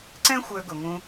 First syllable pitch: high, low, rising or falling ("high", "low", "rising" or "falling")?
high